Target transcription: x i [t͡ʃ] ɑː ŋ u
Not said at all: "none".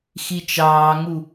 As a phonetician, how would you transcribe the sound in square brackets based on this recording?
t͡ʃ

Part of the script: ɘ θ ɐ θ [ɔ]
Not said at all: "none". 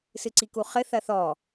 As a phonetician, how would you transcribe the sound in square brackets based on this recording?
ɔ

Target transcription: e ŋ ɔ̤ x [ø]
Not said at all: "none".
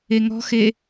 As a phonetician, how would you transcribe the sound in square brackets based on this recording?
e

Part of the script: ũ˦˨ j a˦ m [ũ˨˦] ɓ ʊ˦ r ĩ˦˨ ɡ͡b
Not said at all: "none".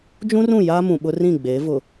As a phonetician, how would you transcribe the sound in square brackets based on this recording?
ũ˨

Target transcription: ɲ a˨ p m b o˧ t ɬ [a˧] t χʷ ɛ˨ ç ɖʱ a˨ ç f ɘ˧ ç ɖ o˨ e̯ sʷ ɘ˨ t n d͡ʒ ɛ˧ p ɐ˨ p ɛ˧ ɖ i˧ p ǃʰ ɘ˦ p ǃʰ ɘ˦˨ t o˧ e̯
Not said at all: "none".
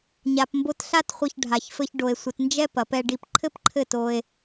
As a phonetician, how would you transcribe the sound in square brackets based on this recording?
a˧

